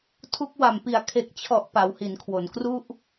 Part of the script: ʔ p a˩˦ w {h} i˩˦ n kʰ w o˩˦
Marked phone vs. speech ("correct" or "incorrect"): correct